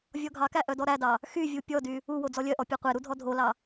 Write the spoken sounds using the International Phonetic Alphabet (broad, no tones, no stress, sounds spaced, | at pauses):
vʲ ɔ ɡʱ ɑ k æ ʔ œ d ɔ ɾ æ d ɑ | x y vʲ u pʲ ɔ d y | u w o d͡z ɔ lʲ œ ʔ ɔ pʲ æ qʷ e ɾ u dʱ ɔ dʱ o l ɑ